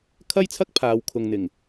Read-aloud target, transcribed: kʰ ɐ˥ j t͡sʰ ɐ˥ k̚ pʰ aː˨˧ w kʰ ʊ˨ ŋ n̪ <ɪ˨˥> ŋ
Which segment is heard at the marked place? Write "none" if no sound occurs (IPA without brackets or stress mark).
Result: ɪ˨˩